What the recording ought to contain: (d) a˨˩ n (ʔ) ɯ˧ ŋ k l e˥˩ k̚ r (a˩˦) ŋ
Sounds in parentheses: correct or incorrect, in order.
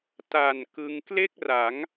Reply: incorrect: t, incorrect: k, correct

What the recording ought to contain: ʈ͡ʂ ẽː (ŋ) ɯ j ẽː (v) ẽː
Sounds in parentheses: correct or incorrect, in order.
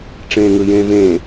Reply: correct, correct

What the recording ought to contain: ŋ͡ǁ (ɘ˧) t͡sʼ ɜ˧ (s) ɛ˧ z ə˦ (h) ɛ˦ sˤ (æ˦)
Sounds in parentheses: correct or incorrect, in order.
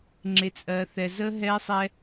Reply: incorrect: e˧, incorrect: θ, incorrect: ɦ, incorrect: ɛ˦

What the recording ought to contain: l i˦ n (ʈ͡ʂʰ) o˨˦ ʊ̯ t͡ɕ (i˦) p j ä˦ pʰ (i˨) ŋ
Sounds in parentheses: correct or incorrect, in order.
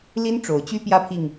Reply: incorrect: ʈ͡ʂ, incorrect: y˦, correct

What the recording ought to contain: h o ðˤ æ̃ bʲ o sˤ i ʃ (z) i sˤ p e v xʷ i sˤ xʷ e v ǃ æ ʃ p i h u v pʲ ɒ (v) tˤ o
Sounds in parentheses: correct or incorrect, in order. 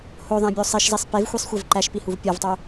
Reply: correct, correct

